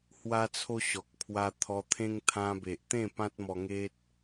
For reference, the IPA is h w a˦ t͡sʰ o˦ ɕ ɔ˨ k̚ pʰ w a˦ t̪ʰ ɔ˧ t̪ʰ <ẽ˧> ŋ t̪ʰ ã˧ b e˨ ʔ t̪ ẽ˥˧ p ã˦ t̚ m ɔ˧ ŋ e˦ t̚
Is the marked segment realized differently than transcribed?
yes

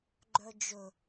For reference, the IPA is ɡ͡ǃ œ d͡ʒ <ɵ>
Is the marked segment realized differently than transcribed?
no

